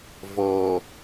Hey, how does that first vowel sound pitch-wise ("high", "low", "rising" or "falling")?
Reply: low